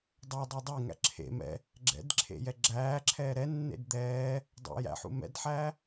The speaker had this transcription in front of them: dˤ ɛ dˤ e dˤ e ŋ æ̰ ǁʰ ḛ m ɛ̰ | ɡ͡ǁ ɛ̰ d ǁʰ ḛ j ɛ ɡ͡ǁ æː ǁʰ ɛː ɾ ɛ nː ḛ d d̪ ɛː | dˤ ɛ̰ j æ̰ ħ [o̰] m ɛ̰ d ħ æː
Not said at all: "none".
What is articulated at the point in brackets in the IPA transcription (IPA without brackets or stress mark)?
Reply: ṵ